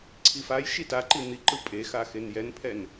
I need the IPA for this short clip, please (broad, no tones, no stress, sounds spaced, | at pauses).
ǀʰ i f a j ʃ i t a ǃ i n̪ i ǃ ɯ pʼ e x a x e n j ɛ n pʰ ɛ n